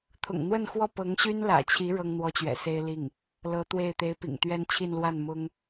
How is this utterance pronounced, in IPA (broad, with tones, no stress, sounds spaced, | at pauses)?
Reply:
t̪ʰ ʊ̰˨˩ ŋ n̪ w ə˥˧ n x w ɔ˥˩ p ɤ˧˥ ŋ ɕ y˥ n l ä̰˨˩ t͡ɕʰ i˧˥ ɻ ɤ˥ ŋ n̪ w ɔ˥ t͡ɕ ɥ ɛ̰˨˩ s e˥ ɪ̯ l i˥˩ ŋ | l ɤ˧˥ t̪ w e˥˩ ɪ̯ t̪ e˧˥ ɪ̯ p ḭ˨˩ ŋ t̪ ɥ ɛ˥ n t͡ɕʰ i˥˧ n l w a˥˩ n m ʊ˥ ŋ